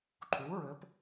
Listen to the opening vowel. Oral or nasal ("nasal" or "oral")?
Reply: oral